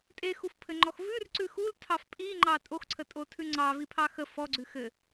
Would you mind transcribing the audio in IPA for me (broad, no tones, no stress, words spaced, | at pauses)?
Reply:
tʼexufpʰɘŋ͡ǃɔx vʉrǀʉ xultʰɑf pʼiŋ͡ǃɑ tʼoxǀʰətʼotʰʉ ŋ͡ǀɑvipʰɑ xə fɔɡ͡ǀʉ xɘ